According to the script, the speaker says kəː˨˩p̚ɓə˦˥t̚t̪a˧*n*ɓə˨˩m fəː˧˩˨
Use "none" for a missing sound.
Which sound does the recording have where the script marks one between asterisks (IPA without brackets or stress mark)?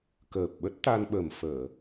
n